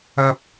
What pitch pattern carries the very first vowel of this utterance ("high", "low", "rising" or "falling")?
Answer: high